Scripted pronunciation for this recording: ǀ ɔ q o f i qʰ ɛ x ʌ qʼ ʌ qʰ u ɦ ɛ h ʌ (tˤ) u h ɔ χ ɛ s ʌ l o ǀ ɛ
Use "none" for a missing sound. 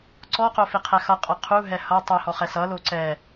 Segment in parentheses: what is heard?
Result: tˤ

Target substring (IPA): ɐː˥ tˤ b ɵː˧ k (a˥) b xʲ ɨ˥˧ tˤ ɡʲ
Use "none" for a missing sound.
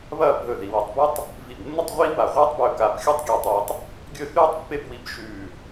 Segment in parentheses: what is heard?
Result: a˧˩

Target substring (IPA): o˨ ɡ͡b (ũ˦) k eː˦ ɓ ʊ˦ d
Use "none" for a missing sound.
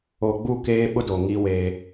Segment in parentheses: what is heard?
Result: u˦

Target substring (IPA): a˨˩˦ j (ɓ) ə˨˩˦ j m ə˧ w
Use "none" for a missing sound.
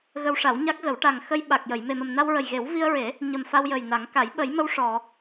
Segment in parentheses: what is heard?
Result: ɓ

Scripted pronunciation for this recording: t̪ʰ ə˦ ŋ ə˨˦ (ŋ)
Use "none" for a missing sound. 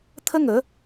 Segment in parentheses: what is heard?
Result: none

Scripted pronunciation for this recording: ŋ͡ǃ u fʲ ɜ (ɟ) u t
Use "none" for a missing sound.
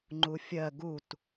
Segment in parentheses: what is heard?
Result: ɡ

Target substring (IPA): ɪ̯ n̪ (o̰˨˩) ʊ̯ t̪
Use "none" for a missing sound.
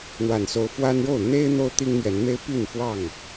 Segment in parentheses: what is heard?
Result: o˦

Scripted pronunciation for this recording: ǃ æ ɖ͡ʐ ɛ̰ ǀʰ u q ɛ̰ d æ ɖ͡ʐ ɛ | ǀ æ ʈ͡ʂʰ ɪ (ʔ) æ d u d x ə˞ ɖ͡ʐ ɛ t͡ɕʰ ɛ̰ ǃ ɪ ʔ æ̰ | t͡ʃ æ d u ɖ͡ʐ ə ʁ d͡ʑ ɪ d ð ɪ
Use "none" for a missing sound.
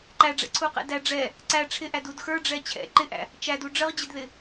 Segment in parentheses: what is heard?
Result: ʔ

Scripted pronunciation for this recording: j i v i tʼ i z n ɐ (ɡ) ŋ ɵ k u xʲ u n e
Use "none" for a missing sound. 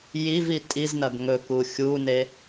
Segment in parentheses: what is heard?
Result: ɡ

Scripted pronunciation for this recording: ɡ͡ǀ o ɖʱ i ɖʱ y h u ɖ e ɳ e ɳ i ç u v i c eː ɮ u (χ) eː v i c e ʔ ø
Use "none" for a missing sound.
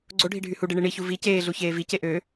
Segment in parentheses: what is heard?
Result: ç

